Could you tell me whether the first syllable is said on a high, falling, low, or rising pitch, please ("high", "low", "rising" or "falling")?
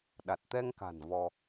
low